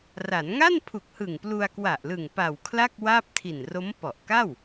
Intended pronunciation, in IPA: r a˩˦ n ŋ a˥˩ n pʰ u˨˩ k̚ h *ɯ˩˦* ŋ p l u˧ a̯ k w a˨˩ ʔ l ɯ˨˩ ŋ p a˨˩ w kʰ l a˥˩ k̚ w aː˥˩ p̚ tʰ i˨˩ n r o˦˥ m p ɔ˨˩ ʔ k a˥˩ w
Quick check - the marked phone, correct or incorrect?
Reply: incorrect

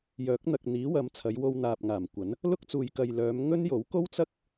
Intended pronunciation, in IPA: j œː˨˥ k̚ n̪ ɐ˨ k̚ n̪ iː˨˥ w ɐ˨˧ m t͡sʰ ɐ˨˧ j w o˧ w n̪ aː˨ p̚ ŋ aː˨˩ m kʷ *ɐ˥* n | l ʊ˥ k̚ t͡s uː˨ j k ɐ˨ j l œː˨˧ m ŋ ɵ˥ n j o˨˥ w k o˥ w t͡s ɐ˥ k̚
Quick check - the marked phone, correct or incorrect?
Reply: incorrect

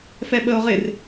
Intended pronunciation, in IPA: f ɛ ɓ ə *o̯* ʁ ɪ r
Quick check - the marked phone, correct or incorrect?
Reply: correct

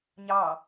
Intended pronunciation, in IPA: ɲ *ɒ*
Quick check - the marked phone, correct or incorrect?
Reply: incorrect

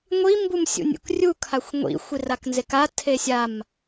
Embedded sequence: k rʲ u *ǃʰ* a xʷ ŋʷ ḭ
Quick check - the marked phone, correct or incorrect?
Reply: incorrect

